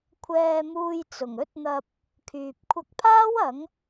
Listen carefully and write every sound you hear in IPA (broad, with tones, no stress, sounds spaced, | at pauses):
kʷʰ ɛː˧ m uː˧ j t͡s ʊ˨˩ ŋ ɵ˥ t̚ n̪ ɐ˧ p̚ | kʰ yː˨ p̚ kʷʰ ɐ˧ k̚ pʰ aː˥ w ɐ˨˥ ŋ